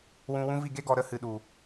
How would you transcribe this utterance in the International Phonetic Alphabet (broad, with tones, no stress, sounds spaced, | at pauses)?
w ũ˧ w ũ˦ v i˦˨ ɡ e˦ ɡ ɔ˨ ɾ ə˦ h ɨ˨ ɗ u˨